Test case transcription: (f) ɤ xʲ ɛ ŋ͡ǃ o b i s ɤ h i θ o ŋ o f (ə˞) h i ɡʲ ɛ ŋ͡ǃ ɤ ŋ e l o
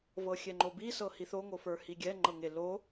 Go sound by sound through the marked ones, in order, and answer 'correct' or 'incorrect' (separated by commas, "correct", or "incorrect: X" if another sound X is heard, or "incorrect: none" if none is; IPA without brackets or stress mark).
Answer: incorrect: v, correct